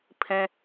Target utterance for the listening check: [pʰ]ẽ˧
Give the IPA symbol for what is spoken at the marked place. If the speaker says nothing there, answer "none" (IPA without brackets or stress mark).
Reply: pʰ